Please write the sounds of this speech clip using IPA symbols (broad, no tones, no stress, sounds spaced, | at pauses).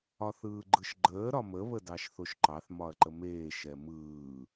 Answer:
ɒ θ ɯː ɡ͡ǃ ɯ ʃ ɡ͡ǃ əː ɾ ɒ m ə β ə d ɑ ʃ θ o ʃ ǃ ɑ θ m ɒ ɐ̯ ǃ ə m eː ʃ ɛ m ɯː